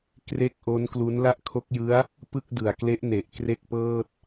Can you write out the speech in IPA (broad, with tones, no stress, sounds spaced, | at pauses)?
k r e˥˩ k̚ ʔ o˦˥ n k l u˦˥ n l a˥˩ ʔ kʰ o˦˥ k̚ j ɯ˦˥ a̯ | p ɯ˥˩ k̚ d ɯ˨˩ a̯ k l e˦˥ ʔ n e˨˩ ʔ k r e˥˩ k̚ p ɤː˥˩ t̚